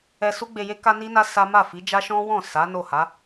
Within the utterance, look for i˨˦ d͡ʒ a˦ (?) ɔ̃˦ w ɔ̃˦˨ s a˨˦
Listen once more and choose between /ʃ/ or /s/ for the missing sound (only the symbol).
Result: ʃ